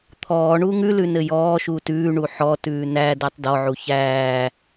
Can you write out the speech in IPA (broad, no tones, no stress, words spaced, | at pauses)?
t̪ʰɔː ɳuːŋʉlʉ nɘjɔːʃuːt ʉːɳu ħɔtʉː næ dætˤdɔʕu çæː